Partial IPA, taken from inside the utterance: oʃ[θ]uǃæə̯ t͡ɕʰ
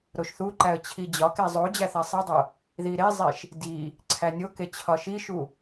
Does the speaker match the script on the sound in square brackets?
yes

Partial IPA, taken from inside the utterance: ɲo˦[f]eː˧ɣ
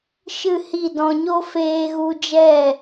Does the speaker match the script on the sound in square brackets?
yes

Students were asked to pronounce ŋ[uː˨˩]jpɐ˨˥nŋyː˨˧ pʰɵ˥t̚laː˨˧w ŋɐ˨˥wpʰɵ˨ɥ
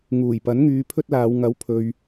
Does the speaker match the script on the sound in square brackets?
yes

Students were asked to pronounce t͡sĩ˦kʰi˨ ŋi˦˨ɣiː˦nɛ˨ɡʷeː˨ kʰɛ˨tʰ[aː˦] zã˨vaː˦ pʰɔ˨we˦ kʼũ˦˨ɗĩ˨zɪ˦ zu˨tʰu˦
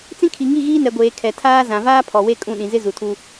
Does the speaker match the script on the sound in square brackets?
yes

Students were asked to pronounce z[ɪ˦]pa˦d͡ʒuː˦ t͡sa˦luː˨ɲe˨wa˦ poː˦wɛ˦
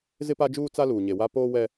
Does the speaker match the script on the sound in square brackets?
yes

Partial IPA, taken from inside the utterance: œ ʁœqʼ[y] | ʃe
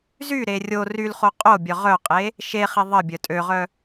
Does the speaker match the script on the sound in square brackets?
no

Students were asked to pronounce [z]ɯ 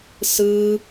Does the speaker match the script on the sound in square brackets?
no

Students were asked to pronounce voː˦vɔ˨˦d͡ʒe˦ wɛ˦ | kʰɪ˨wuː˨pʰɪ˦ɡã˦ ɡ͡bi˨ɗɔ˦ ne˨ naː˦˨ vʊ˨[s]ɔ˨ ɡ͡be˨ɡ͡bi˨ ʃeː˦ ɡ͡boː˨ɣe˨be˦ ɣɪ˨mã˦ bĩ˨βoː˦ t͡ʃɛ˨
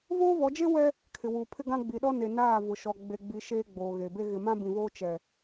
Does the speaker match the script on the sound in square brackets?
no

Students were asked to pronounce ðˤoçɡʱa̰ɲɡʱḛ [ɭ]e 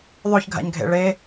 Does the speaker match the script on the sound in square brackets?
yes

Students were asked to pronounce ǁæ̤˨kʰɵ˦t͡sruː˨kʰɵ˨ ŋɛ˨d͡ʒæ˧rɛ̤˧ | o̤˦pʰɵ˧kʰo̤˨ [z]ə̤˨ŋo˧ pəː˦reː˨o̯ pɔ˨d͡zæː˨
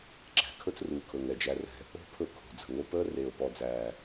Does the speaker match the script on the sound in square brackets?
no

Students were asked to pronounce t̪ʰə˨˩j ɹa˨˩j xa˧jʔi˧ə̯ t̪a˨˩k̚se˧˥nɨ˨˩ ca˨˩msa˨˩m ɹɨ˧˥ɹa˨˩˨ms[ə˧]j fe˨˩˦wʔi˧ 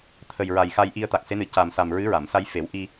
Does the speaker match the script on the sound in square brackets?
no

